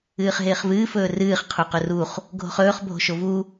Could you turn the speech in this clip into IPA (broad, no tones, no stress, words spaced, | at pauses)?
ɨːχɦɪːχvɨː fɵːrɨːχ qʰuqɵruχ | ɡʱo̤χɵːχ bʱo̤ʃovu